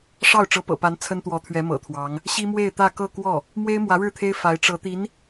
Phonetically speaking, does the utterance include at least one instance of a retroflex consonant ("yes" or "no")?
yes